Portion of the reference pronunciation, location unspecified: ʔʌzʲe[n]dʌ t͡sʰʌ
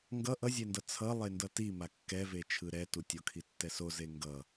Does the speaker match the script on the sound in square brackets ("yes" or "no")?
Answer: yes